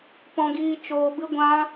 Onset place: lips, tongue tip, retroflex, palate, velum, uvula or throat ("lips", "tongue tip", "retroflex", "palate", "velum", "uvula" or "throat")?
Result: lips